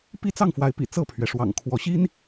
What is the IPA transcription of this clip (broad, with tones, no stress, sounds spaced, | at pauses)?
p i˦ t͡s ɑ˥˨ ŋ f w a˨˦ ɪ̯ p ḭ˨˩ t͡s ɤ˥˨ pʰ ɥ ɛ˩ ʂ w ɑ̰˨˩ ŋ kʰ w ɔ˨˦ ɕ i˦ n